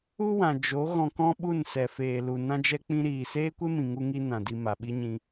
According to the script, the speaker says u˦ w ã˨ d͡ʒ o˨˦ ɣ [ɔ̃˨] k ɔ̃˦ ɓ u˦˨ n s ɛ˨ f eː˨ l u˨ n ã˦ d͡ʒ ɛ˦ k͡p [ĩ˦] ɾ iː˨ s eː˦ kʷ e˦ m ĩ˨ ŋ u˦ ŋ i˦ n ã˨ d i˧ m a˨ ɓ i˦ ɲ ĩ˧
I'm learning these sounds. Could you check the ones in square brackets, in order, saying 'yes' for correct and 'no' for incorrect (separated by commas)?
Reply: no, yes